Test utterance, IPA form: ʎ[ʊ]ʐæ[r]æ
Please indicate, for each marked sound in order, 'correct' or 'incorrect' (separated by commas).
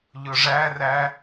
correct, correct